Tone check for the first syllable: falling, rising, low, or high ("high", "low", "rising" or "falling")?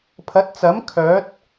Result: rising